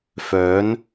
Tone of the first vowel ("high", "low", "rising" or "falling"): rising